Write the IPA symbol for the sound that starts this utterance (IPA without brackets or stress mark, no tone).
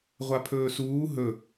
ʁʷ